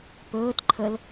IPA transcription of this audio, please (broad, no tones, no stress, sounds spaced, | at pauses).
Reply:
p ɵː t ǃʰ ə l